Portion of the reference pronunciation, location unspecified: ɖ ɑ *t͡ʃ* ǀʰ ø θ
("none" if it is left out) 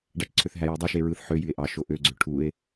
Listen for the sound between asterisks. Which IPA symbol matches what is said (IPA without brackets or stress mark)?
t͡ʃ